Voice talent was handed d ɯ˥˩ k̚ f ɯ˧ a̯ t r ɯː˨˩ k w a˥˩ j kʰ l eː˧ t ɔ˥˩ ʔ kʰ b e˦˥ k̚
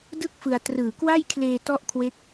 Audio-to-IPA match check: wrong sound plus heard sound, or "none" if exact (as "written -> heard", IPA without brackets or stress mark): b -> w